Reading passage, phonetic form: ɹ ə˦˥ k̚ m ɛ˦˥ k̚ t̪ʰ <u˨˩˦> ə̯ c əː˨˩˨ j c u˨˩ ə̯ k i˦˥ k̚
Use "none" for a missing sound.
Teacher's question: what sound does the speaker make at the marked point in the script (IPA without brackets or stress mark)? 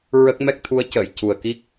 u˧˥